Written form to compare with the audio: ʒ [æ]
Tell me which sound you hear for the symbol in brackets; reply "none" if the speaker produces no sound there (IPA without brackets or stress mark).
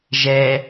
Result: ɛ